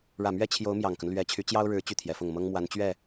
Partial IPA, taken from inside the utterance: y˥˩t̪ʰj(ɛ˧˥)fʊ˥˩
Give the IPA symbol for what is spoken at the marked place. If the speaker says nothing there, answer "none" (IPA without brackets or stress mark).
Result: ɛ˧˥